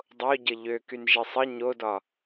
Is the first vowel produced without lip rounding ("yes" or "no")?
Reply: no